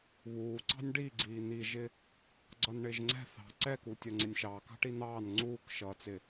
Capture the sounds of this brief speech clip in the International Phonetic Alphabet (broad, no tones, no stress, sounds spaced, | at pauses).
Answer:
β uː ǀ ɑ̤ nʲ ɖ i ɡ͡ǀ iː n̪ i ʒ ɪ | ɡ͡ǀ ʌ n ɳ ɪː ʒ ŋ͡ǀ ɛ̤ θ ɑ̤ ǀ ɛ k u tʲ ʌ ŋ͡ǀ ɪ nʲ ʃ ɑː k ɑ̤ ʈ i n̪ ɑː n ŋ͡ǀ uː k ʃ ʌː t͡s ɪ